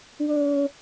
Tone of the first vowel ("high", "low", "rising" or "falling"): high